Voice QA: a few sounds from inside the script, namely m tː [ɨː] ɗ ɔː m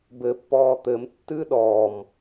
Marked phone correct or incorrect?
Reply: correct